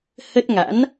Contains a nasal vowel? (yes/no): no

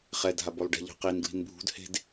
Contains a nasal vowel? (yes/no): no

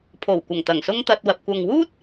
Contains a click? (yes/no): no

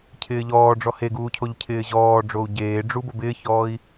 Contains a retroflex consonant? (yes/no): yes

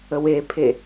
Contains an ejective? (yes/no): no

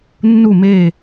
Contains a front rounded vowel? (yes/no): no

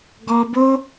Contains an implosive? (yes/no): no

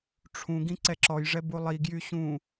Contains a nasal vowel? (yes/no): yes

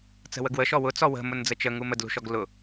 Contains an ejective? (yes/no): no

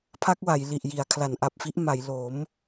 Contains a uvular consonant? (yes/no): no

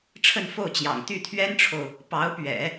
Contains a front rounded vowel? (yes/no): yes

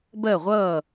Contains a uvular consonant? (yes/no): yes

